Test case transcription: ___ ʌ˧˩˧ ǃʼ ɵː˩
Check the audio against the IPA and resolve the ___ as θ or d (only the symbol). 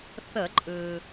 θ